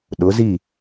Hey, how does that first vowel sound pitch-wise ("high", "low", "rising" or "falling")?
rising